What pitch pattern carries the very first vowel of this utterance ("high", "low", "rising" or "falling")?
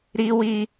high